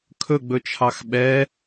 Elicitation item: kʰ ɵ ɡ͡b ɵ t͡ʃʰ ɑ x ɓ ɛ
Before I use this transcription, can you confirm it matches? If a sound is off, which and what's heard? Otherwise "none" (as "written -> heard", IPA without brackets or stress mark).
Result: none